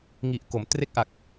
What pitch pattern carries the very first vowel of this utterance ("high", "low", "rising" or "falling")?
low